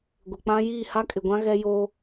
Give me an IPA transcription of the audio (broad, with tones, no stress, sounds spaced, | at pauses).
ɡʷ ɪ˨ k͡p ã˦ j iː˦˨ h a˦ kʼ ɪ˨ ɡʷ ã˦ ɣ ɛ˦ j o˦